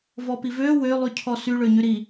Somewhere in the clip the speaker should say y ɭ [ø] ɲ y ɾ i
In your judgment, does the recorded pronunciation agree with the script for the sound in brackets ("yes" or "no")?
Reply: yes